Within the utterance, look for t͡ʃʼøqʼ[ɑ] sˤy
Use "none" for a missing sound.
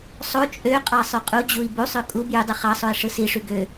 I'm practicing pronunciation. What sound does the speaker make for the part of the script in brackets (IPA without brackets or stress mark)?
ɑ